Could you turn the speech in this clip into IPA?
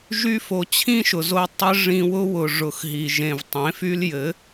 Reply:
ʒ y˧ f o˨ t͡ɕʰ ĩ˦ ʃ ʊ˨ z o˧ tˤ ɘ˦ ʐ ĩ˧ w ʊ˦ w ʊ˨ ʐ ʊ˨ x ɦ i˨ ʒ ẽ˨ v tˤ ẽ˨˦ f y˦ l j ɘ˨˦

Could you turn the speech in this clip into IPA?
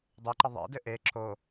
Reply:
dˤ e ǃ ɘ ðˤ ḛ d ɘ ʔ e ǁ o

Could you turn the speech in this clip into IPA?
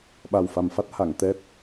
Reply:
ɓ a˨˩ w f a˨˩ m f a˦˥ t̚ h a˨˩˨ ŋ t̪ ɛ˦˥ t̚

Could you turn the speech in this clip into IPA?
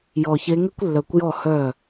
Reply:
j ɔ˧˩ ç e˧˥ ŋ e˥ kʷ lː œ˧˩ kʷ j ɔ˥˩ h œ˥˩

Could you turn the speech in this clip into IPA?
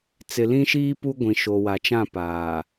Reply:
t͡s ɪ˨ l ĩ˦ ʃ iː˦ p u˦ ɡʷ ĩ˨ ʃ o˨ w a˨ t͡ʃ ã˦˨ p aː˨

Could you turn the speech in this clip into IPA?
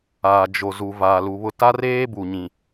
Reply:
aː˨ d͡ʒ o˨ z u˨ v aː˨ l u˨ β ʊ˦ t a˦ r eː˦ b u˨ ɲ ĩ˨

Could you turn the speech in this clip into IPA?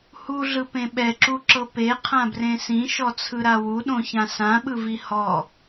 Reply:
h u ɮ ɯ p ẽ ɓ ɛ ǁ u ǁ ɤ p e qʰ ã b r ẽ s ĩ ʃ ɔ t͡sʰ ɯ ɾ a w u ɗ õ ç ã s ã ɓ ɯ v i h ɔ

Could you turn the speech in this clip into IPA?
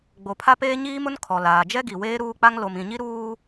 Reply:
ɡ͡b o˨ pʰ a˦ p eː˦ ɲ iː˦ m ʊ˦ n kʰ ɔ˨ l aː˨ d͡ʒ ɛ˦ ɡ i˨ w eː˦ ɾ uː˦ k͡p a˦ ŋ l o˨ m ĩ˨ ɲ i˦ ɾ uː˦

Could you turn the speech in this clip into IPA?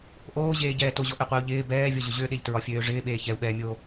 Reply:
ʔ oː ʑ eː ɟ ɛː t o ʑ ɔ ʔ ø qʷ ɪː u̯ ʎ ɪː b ɛː vʲ ɔ ʑ ʏ ʑ ø ɗ e ʎ t ɹ ɒ fʲ øː ʐ ɪː ɓ eː ç ɛ u̯ ɓ ɛː mʲ oː

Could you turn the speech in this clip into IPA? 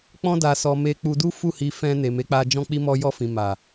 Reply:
k͡p ɔ̃˧ d a˨ s ɔ˨ m e˧ k͡p u˧ d u˦ f u˦˨ h i˧ f ɛ̃˧ n e˨ m e˨˦ k͡p a˧ d͡ʒ ɔ̃˧ k͡p i˧ m ɔ˧ j ɔ˧ f ĩ˨ m a˨

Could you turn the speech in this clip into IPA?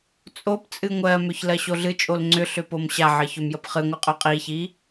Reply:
t͡sʼ o p t͡sʼ ɨ ŋʷ ɜ m ʏ ç l ɜ ɕ o ɮ ɨ t͡ʃʼ o l ŋ͡ǀ ʏ ɬ ʏ p o m ɕ a ʕ ə ç ʏ m j ə p χ ɨ ŋʷ ɨ qʼ ʉ qʼ i ç i

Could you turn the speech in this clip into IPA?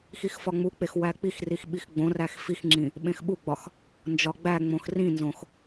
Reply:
x i x f ɒ ŋ͡m u k͡p e x w æ k͡p i x r i x ɓ i x ɡ͡b õ r æ x f i x ŋ͡ǁ ĩ | ɓ ẽ x ɓ u ɡ͡b ɒ x | n d͡ʒ ɒ ɡ͡b æ ŋ͡m õ x r ĩ n z õ x

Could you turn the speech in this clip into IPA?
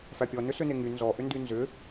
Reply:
f æ pʲ ɔ n ʏ s ʏ n e ŋ y n z ɔ ʔ ʏ n d y n z ʏ

